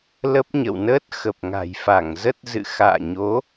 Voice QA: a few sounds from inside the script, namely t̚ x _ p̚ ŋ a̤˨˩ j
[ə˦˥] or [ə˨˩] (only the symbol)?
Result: ə˨˩